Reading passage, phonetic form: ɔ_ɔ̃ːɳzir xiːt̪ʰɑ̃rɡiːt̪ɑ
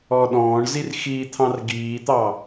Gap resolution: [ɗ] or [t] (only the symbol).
ɗ